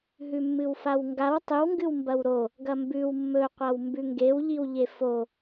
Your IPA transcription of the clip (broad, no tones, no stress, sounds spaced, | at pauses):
ɦ ʉ mː ɨ w f a w ŋ ɡ a w tˤ ɨ w ŋ ɡ ɨ w m b ɐ w ɾ o | ɡ ɐ m b ʉ w mː ɵ qʷ a w m b ʉ ŋ ɡ e w ʎ i w ʎ e f o